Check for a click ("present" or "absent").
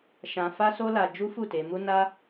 absent